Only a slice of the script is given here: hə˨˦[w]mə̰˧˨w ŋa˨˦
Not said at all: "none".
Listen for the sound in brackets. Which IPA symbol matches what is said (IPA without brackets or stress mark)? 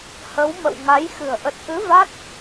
w